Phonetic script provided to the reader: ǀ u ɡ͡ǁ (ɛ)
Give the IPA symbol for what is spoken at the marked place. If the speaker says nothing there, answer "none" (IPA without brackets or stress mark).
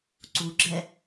ɛ